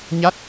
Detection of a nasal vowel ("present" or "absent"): absent